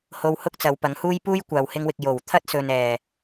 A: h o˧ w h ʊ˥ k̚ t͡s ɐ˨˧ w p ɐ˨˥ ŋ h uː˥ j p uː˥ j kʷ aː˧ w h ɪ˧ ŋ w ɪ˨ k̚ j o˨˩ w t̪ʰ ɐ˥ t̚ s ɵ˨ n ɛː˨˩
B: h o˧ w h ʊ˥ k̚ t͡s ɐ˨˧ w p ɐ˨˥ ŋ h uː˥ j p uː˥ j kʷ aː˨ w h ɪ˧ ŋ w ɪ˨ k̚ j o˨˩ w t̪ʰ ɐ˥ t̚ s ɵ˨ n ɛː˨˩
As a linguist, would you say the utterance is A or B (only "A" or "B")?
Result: B